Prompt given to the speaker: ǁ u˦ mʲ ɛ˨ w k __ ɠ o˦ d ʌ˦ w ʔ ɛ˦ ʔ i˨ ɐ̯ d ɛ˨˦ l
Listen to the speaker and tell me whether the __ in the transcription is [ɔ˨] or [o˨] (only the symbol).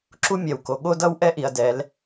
o˨